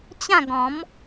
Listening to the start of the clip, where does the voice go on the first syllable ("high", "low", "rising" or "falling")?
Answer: falling